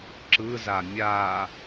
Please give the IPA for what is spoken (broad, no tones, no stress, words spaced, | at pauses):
ǁɯza mʲa